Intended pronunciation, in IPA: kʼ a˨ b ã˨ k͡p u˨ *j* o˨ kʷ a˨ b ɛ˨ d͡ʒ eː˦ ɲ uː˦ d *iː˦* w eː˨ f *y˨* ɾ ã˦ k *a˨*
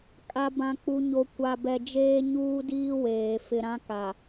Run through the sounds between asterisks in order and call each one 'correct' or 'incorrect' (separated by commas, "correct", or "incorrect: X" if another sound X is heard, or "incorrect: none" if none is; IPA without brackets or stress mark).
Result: incorrect: ɲ, correct, incorrect: ɪ˨, correct